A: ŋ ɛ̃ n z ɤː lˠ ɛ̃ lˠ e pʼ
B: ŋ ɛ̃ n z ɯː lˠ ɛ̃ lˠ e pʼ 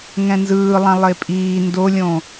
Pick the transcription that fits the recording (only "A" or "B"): B